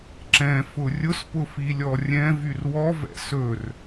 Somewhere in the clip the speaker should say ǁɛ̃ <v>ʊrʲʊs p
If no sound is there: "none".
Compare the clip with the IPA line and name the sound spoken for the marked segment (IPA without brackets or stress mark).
f